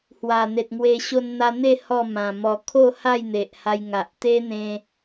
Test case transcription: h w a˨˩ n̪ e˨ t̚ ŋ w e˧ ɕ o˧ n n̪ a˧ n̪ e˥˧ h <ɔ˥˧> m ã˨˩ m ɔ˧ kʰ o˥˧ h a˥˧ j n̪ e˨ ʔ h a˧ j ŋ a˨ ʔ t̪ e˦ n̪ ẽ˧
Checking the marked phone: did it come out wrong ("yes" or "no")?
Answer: no